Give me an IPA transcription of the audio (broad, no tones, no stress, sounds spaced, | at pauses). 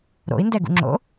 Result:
ɾ o̰ i̯ n d ɛ ɡ ṵ ŋ͡ǁ o̰